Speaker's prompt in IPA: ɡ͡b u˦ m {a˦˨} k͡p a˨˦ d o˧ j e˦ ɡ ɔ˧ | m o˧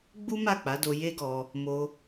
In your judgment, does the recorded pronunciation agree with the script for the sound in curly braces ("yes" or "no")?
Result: yes